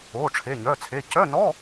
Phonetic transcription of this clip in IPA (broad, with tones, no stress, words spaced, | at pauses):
oː˩˧˩ʈ͡ʂʰe˩˧˩ɲœ˩˧˩t͡sʰe˩˧˩ cœ˧˥˧nɔ˧˥˧